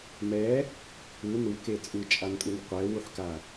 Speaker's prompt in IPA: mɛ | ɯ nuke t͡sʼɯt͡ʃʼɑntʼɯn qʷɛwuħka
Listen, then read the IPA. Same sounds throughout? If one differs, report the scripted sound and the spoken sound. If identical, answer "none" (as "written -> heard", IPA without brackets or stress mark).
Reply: ɑ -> a